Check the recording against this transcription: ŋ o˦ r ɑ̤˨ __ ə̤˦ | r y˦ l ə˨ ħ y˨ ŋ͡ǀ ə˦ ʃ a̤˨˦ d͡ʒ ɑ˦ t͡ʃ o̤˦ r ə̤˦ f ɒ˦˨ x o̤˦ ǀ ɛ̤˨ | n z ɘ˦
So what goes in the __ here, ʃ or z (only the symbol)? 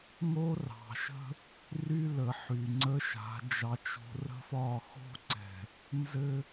ʃ